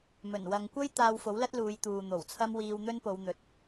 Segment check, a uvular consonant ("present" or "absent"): absent